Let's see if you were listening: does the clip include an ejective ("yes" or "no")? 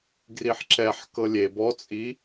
yes